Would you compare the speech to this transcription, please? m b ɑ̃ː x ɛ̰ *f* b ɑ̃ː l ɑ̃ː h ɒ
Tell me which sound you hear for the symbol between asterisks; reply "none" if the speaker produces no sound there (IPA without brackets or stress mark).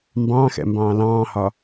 m